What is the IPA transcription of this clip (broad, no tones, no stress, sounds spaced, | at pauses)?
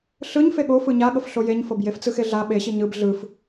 ɬ ɯ ɲ f e ɠ o f ɯ ɲ a ɠ ɤ f ɬ o j e ɲ f ɤ b j e f t͡s ɯ x e ɮ a ɓ e ɕ i ɲ ɯ b ɮ ɯ f